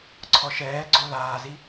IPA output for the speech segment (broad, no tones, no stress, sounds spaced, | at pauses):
ǀʰ ɔ ʃ ɛː ɡ͡ǀ o l aː z i